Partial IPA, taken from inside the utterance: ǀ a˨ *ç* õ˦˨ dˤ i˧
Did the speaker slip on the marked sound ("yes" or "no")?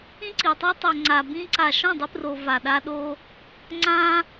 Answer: yes